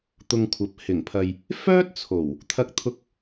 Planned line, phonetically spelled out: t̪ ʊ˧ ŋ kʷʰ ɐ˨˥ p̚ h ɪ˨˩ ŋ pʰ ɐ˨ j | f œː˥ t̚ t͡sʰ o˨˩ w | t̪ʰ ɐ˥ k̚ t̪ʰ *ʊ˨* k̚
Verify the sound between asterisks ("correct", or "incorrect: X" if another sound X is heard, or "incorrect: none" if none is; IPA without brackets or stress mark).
incorrect: ʊ˥